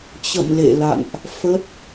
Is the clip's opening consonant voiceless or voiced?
voiceless